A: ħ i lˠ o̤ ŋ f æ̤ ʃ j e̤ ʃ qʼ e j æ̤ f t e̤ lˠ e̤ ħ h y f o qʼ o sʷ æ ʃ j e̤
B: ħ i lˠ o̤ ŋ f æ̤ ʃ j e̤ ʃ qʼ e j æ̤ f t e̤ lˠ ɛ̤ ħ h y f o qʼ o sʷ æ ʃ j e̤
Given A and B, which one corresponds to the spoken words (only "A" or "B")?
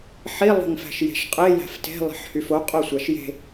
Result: A